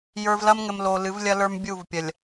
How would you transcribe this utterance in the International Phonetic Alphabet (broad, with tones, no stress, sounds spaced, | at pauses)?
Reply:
j ə˞˨ v l ɐ˦ m ŋ ɘ˨ m l o˨ l ɨ˨˦ v lʲ ɐ˦ l ə˞˦ m bʲ u˦˨ v pʲ ɐ˨ lʲ